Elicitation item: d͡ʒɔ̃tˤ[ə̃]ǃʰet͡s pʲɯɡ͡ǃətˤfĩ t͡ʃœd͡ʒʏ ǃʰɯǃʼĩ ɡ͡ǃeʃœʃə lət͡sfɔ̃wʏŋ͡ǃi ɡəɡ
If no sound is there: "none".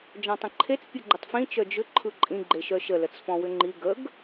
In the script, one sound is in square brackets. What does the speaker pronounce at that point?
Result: ə̃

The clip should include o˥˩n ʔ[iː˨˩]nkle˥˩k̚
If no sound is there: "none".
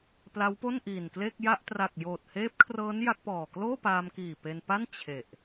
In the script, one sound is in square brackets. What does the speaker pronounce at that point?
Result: iː˨˩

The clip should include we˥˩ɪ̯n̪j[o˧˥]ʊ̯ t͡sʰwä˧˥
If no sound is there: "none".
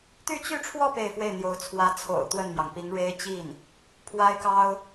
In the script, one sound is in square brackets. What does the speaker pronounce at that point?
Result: o˧˥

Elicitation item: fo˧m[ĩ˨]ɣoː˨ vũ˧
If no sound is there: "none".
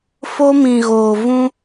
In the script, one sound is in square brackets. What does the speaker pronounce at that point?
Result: ĩ˨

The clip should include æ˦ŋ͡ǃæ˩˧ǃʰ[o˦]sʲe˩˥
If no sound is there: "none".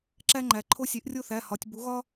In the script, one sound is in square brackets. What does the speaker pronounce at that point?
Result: o˦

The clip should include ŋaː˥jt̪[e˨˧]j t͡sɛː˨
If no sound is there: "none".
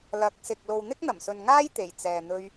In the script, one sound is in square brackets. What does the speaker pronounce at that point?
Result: e˨˩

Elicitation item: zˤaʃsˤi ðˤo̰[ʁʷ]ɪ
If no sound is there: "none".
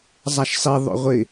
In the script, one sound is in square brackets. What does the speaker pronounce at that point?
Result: ʁʷ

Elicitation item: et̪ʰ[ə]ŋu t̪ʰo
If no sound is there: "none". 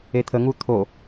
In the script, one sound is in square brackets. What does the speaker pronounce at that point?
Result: ə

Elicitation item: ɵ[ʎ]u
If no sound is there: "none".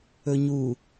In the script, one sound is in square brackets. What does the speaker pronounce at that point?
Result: ɲ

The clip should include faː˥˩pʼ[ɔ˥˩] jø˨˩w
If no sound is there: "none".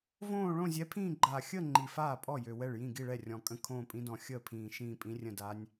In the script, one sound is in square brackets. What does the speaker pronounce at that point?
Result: ɔ˥˩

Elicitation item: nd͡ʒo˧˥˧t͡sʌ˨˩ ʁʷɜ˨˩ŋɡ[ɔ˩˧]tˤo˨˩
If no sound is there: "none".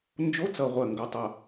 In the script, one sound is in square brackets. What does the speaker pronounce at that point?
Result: o˩˧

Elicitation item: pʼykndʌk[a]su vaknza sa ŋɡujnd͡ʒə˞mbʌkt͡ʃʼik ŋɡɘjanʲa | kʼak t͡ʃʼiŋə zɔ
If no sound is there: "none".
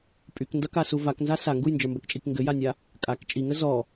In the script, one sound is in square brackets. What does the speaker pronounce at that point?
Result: a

